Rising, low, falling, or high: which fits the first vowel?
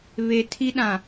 low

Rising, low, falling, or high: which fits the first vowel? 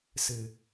low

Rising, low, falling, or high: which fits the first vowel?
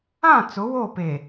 falling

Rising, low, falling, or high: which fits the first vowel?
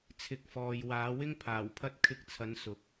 rising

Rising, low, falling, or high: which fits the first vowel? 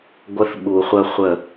high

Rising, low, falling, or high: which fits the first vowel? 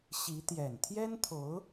rising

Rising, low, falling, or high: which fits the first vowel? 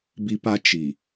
high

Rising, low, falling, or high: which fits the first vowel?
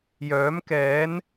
rising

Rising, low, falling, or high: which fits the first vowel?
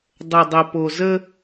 low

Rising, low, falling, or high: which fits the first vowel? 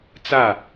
falling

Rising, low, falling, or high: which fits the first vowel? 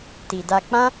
low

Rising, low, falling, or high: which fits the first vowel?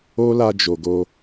high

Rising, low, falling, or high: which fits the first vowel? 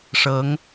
rising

